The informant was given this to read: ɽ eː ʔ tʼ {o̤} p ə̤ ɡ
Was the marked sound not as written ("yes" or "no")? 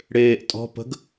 yes